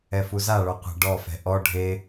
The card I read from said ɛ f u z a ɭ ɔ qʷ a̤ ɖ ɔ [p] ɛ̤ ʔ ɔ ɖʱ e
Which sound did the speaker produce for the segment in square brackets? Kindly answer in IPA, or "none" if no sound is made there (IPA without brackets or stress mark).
f